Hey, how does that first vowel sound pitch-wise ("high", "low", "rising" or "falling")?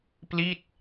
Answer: falling